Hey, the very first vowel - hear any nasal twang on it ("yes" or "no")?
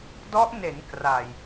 no